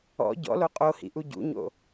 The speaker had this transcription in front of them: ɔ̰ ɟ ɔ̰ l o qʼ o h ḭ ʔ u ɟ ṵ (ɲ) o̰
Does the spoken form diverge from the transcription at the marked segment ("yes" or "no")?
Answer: no